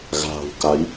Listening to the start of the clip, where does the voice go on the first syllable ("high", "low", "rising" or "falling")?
low